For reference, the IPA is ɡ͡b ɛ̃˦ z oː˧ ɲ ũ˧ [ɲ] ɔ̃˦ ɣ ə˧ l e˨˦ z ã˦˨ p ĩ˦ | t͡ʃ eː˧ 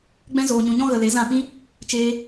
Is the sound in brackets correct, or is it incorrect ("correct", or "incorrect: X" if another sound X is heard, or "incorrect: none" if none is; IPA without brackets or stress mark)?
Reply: correct